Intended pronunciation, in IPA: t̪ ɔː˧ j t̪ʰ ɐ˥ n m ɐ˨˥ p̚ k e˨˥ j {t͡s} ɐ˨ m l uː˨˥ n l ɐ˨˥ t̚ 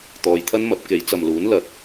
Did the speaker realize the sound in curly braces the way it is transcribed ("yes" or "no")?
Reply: yes